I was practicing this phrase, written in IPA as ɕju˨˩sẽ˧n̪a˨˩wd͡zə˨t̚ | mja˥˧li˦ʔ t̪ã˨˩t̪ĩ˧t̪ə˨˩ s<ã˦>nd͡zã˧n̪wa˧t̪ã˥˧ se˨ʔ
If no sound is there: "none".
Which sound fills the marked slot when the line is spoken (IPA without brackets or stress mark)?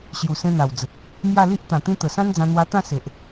ã˦